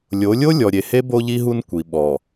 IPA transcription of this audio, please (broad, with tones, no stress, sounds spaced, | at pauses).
lʲ o˨˦ lʲ o˦ lʲ ɔ˨ ɾʲ e˨ h e˦ b o˦ ʎ i˦ ɦ u˦ n kʷ i˨ ɓ ɔ˨